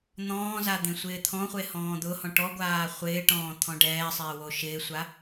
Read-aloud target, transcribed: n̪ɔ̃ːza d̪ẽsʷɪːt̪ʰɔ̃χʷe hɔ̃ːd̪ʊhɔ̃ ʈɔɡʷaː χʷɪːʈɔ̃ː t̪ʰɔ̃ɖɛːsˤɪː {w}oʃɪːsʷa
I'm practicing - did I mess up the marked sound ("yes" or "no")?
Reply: no